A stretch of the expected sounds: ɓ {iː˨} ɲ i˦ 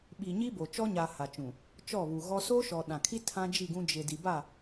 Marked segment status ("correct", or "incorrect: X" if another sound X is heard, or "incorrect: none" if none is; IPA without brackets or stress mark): incorrect: i˨